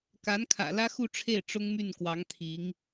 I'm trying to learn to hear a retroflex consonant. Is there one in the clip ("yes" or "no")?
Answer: yes